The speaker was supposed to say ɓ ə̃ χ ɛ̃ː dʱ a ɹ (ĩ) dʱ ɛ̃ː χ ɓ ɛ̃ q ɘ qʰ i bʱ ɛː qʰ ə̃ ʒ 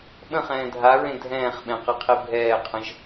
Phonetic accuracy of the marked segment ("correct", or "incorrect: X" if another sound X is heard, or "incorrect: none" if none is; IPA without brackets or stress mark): incorrect: ẽ